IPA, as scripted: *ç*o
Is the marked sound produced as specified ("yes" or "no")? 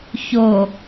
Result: yes